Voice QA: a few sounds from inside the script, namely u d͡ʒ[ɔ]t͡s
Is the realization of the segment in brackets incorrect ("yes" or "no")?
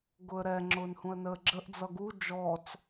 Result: no